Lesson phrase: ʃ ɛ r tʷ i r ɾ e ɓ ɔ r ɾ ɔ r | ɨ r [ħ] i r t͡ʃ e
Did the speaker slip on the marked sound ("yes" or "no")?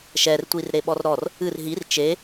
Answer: yes